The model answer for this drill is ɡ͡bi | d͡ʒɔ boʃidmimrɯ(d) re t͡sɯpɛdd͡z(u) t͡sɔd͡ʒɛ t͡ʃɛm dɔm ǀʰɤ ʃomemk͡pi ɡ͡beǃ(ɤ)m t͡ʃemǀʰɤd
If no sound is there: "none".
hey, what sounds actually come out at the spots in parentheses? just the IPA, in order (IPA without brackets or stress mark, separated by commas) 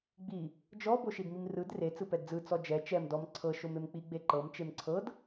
d, ɯ, ɤ